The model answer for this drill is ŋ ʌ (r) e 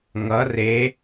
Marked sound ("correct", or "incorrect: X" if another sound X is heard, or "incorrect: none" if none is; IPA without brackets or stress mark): correct